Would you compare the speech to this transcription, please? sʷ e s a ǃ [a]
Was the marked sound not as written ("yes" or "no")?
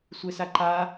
no